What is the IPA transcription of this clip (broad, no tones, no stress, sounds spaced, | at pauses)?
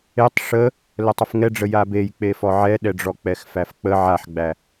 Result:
e tˤ ʂ ə | l ə tˤ ə f ŋ ɛ ɖ͡ʐ ə j a b e j k͡p e f ɔ ʕ ɛ ɗ ɛ ɖ͡ʐ ɔ k͡p ɛ x f æ f k͡p ə ʕ a ħ ɡ͡b æ